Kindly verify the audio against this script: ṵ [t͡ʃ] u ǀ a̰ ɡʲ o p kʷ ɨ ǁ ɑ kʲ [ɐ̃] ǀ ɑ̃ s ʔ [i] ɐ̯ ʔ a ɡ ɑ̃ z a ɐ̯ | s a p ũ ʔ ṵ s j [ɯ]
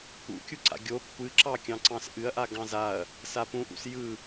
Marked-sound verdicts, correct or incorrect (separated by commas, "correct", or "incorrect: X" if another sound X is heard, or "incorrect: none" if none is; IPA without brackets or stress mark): incorrect: kʲ, incorrect: ɑ̃, incorrect: ɨ, correct